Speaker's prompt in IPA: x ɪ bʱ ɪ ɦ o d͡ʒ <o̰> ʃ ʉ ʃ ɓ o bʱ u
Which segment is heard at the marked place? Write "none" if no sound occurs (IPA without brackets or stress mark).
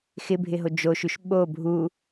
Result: o